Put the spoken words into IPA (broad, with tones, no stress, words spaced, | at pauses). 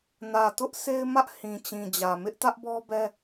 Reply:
nä˨tʊ˦ʔ se˦ɪ̯mä˦ʔ hĩ˨t͡ɕĩ˨ d͡ʑä˨mɪ˦ʔ tä˦ʔbɔ˦bɛ˦